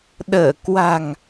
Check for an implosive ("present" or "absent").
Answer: present